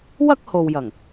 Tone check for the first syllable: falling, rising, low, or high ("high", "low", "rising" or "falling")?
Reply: high